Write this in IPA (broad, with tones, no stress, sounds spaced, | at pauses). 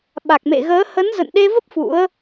ɓ a˨˩ k̚ m ḛ˧˨ ɣ əː˨˦ h ə˨˦ n z ə̰˧˨ n ɗ e˧ v ə˦˥ p̚ f ṵ˧˥ ə̯